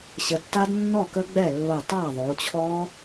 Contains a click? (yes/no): no